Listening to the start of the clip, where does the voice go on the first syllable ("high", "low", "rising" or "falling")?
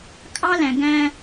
high